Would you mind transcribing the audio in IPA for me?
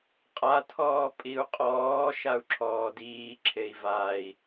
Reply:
qʼatʰɔː pʼiu̯qʼɔː ʃau̯ǁʰɔːdiː ǁʰei̯vai̯

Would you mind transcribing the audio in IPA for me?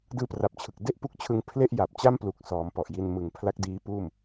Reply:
dɯː˧pra˨˩p̚t͡ɕʰɯ˨˩k̚ de˥˩ʔpu˦˥k̚t͡ɕʰɯ˧ŋ pʰle˥˩ʔja˨˩p̚t͡ɕa˥˩mplu˨˩k̚ sɔː˩˦mpɔ˨˩ʔji˧n mɯ˨˩ŋpʰla˦˥k̚diː˦˥puː˥˩m

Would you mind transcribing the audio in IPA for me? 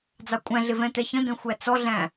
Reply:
d͡zɑkʷʼæ̃ɮɪ vɛ̃t̪ɛçə̃d̪ɛ̃ xʷæt͡sɔɮæ̃

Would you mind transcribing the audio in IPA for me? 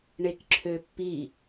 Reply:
ɳekǁʰøpːi

